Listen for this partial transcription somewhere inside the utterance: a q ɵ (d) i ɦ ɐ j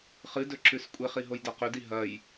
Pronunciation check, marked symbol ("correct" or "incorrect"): correct